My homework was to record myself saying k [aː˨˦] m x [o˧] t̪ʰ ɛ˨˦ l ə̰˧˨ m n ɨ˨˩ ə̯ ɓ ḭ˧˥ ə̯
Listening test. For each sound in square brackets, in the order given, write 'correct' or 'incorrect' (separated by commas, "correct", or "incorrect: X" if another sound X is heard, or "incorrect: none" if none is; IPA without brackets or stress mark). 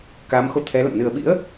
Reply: correct, correct